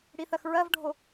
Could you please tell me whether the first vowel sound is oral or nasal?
oral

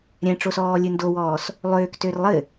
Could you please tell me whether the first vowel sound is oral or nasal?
nasal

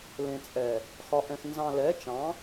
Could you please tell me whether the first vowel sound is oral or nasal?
nasal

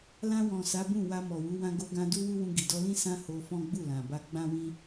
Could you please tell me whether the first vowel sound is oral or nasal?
nasal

